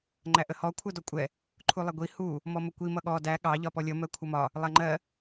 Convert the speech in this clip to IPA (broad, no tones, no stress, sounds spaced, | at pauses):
ŋ͡ǃ æ ʔ ə h ɔ kʷʰ ɜ d ɔ kʷʼ ɛ | ǃʰ u lˠ ɛ ɡʷ i h u | m ɔ m ə kʷ i m ʌ ɠ ɔ d æ ɠ ɑ ʎ ɒ p ɔ lʲ ʌ m ɜ kʷʰ ʌ m ɒ | lˠ æ ŋ͡ǃ ɜ